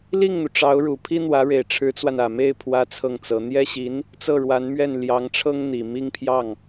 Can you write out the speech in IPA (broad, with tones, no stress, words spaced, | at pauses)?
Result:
li˥˩ŋn̪u˩ʈ͡ʂɑ˧˥ʊ̯ɻu˨˩ pʰi˥n̪wä˧˥ɻe˨˩ɪ̯ ʈ͡ʂʰɻ̩˧˥t͡swa˧n ä˨˩me˥˩ɪ̯ pʰwä˥t͡sʰɤ˥˩ŋt͡sɤ˧˥ n̪jɛ˥ɕi˧˥n | t͡sɤ˥˩ɻwa˧˥nmɥɛ˥˩n ljɑ˧˥ŋʈ͡ʂʰɤ˥ŋ n̪i˨˩mi˥˧ŋpʰjɑ˥˩ŋ